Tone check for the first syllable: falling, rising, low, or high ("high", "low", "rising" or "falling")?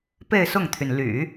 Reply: falling